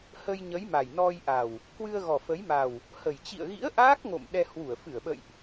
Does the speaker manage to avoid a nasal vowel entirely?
yes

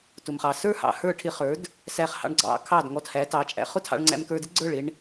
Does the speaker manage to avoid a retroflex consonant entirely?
no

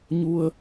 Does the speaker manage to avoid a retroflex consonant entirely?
yes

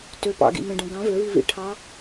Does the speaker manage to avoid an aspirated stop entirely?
no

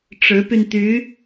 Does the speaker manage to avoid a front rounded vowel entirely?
no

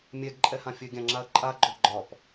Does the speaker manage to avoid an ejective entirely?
no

